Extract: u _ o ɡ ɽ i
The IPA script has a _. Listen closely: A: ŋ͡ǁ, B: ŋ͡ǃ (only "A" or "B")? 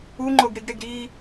B